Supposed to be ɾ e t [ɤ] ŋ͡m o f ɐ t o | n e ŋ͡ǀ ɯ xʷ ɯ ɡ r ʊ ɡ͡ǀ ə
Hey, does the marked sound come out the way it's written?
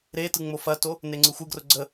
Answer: no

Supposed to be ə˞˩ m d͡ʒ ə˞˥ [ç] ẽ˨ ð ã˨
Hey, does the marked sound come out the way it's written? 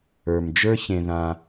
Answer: yes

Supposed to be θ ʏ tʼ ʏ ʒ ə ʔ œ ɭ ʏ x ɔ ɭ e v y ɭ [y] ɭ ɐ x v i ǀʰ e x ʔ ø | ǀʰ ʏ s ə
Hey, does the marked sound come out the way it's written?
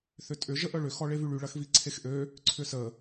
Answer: yes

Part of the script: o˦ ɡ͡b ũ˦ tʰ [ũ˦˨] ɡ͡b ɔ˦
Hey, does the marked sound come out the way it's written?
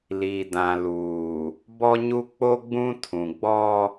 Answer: no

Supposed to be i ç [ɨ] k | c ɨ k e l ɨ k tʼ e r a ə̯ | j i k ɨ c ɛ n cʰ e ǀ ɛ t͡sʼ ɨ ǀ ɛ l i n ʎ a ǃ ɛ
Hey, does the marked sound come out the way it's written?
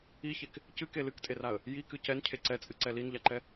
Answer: no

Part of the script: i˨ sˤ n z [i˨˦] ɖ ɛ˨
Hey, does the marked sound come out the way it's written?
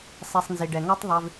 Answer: no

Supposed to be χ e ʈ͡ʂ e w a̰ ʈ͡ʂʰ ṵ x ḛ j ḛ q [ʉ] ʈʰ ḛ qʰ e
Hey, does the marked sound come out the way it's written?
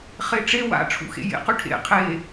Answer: yes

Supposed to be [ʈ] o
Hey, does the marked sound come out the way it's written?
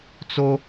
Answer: no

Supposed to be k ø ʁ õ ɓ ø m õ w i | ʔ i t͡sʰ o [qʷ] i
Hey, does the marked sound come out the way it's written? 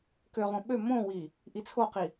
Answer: no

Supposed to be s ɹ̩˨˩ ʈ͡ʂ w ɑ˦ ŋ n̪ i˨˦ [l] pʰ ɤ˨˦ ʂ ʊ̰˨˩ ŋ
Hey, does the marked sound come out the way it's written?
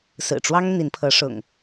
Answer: no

